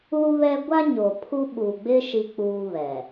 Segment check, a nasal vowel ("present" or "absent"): absent